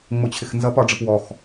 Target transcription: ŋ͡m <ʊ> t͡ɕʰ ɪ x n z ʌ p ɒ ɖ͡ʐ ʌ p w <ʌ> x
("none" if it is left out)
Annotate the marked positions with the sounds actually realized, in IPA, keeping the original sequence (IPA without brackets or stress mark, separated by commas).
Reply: ʊ, ɔ